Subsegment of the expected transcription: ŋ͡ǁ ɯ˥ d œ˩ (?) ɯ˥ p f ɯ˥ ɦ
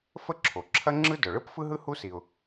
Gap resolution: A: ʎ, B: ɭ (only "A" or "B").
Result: B